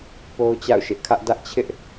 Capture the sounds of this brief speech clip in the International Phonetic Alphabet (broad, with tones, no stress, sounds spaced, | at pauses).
p o˦ ʊ̯ t͡ɕ a̰˦˨ ʊ̯ ʃ ɪ˦ ʔ kʰ ä˦ ʔ d ä˦ ʔ t͡ɕʰ ɪ˦ ʔ